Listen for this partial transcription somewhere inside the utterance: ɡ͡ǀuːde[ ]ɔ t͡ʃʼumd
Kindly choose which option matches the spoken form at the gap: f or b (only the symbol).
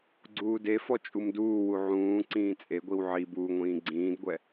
f